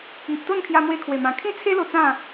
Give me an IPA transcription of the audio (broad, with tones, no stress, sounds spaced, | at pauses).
i˨ p̚ t̪ o˥˧ n kʰ j a˧ m w e˧ kʰ w e˨˩ m ã˨˩ kʰ ĩ˦ t͡sʰ e˦ l o˧ t͡s ã˥˧